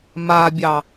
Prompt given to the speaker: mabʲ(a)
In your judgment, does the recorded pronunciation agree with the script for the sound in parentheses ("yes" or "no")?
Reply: no